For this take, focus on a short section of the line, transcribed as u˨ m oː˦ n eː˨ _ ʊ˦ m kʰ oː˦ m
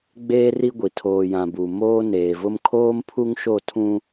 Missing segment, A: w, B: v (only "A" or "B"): B